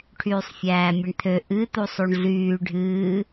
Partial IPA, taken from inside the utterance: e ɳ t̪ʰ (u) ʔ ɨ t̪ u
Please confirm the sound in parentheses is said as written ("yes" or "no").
no